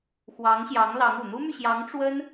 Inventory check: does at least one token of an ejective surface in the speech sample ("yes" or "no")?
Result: no